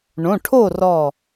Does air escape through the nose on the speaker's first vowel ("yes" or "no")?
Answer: yes